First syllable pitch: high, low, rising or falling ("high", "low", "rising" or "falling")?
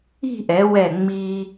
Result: falling